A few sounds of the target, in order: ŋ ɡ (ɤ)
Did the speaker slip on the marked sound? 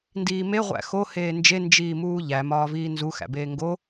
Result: yes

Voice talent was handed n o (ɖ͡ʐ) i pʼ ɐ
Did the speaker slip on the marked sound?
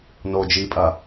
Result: yes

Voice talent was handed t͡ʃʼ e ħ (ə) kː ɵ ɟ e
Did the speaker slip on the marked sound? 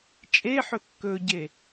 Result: yes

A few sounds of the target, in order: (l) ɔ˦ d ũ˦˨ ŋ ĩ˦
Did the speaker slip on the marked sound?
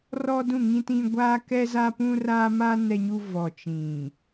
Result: yes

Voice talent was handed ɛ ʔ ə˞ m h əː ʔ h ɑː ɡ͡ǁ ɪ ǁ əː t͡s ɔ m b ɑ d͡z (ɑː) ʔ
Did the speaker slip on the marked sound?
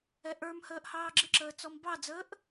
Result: yes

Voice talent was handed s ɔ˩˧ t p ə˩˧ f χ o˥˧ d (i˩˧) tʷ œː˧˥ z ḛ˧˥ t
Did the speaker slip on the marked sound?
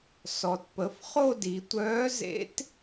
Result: no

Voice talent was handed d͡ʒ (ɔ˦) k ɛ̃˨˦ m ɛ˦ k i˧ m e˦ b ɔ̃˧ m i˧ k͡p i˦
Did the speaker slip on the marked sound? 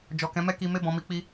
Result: yes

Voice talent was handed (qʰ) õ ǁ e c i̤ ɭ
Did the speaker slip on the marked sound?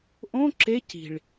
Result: yes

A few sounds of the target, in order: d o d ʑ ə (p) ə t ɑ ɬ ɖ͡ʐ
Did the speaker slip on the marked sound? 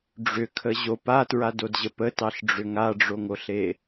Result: no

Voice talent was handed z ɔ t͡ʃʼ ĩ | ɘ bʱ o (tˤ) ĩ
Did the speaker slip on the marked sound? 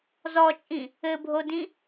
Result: yes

